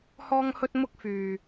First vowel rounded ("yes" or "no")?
yes